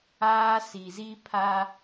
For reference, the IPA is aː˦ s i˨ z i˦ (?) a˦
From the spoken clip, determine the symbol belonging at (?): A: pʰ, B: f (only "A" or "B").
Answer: A